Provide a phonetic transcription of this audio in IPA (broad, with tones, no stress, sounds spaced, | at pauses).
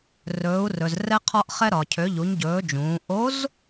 r ɵː˩˧ u̯ r ɵ˩ z r ɛ˧ qʰ ɒ˧ ʔ χ ɛ˧ ɾ ɒ˩ cʰ ø˩˧ ʎ u˩˧ ɲ ɟ ɵː˩˧ d͡ʒ ũː˩˧ ʔ o˧˥ z